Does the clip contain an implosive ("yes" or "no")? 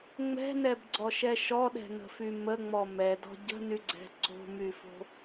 yes